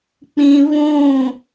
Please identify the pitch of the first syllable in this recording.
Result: high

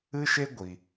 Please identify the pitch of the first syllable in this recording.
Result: high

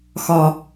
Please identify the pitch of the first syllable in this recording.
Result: high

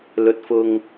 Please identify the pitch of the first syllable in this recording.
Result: rising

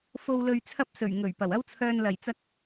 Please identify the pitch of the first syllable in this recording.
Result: low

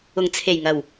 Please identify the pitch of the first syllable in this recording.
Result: low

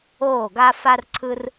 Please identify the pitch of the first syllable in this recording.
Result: falling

